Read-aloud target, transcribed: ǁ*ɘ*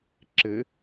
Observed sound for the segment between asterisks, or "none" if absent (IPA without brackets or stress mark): ɘ